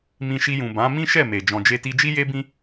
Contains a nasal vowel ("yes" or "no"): yes